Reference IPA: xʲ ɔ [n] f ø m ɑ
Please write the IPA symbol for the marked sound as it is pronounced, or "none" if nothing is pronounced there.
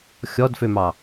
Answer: d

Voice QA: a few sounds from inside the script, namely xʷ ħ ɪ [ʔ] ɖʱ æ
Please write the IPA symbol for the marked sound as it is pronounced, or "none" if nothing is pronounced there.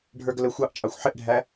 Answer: ʔ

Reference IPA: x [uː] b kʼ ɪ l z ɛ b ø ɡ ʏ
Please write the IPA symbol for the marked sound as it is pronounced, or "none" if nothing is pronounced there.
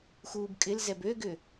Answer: uː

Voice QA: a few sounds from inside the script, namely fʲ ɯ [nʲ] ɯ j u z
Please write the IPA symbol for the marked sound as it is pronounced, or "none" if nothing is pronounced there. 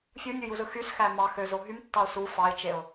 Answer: nʲ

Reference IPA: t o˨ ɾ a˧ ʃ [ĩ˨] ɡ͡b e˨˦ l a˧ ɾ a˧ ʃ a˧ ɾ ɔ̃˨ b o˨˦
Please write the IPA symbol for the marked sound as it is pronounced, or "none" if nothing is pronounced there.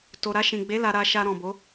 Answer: ĩ˨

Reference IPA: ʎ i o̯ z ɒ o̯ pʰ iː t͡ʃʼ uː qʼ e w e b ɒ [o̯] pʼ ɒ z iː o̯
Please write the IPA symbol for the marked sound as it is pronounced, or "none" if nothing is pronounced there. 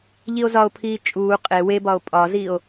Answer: o̯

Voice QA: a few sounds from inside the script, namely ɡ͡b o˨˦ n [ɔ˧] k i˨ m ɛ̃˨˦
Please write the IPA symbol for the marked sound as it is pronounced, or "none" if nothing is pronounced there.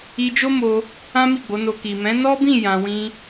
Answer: o˧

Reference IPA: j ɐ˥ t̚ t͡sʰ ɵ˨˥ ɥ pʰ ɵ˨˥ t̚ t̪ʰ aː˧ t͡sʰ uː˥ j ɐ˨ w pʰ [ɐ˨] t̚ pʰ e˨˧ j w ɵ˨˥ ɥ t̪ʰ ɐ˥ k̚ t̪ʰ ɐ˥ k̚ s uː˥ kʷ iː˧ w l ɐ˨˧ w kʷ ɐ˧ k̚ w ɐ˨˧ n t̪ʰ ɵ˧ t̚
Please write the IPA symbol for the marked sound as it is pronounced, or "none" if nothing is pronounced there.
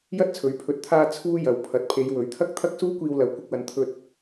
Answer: ɐ˨˥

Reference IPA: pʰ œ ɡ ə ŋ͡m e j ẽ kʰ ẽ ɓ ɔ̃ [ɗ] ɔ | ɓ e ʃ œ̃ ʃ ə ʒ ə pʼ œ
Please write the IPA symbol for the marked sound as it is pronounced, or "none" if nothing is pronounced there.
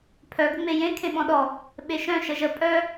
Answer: ɗ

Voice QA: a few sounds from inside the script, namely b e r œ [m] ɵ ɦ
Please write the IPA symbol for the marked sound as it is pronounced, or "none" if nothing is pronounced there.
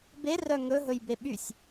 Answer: ŋ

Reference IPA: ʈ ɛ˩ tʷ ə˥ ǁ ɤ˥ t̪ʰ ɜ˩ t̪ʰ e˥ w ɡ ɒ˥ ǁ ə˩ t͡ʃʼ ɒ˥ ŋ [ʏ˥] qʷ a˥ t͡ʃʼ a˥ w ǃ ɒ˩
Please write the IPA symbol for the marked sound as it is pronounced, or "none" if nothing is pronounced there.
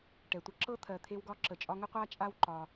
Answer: ə˥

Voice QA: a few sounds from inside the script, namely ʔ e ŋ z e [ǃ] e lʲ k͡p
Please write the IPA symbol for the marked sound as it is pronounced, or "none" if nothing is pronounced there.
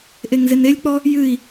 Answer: n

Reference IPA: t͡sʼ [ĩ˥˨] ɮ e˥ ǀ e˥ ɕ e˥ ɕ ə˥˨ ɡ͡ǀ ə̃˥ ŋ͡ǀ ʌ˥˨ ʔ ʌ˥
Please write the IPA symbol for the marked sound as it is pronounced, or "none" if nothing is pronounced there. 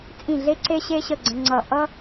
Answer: ĩ˥˨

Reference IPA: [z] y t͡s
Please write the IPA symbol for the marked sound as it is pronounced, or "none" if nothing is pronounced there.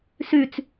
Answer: s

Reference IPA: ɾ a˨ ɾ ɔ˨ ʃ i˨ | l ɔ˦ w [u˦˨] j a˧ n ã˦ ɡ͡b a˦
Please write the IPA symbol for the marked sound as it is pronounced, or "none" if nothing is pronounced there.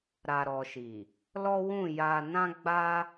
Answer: ũ˦˨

